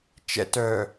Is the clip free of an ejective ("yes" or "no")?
yes